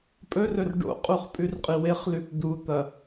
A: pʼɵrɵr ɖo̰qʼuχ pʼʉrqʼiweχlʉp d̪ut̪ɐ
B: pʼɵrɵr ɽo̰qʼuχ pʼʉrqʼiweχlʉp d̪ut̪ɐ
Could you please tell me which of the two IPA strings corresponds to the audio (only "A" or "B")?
A